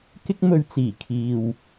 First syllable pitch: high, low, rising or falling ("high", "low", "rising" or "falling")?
high